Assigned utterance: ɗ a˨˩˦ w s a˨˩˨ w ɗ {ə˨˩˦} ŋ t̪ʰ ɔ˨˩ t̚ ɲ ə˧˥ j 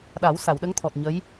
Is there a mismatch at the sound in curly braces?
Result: yes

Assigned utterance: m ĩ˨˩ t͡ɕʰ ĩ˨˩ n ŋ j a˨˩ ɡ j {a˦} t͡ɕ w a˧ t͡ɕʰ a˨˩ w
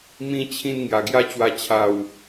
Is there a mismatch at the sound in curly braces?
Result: no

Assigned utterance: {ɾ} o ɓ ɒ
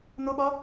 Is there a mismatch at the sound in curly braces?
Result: yes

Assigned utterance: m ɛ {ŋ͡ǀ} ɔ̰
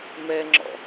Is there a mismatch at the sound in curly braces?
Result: yes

